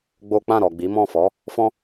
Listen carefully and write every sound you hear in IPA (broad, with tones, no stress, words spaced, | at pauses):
ɡ͡bo˦ k͡pã˦˨ɾɔ˨ ɡ͡bi˨˦mɔ̃˦˨ fɔ˨˦ | fɔ̃˦